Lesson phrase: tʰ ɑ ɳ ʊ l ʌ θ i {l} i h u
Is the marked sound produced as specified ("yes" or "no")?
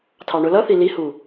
yes